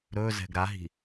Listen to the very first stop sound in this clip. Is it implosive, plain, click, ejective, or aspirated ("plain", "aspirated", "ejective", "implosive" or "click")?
plain